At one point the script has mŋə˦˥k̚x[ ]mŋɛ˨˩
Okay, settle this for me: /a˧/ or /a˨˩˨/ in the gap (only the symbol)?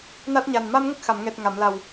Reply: a˨˩˨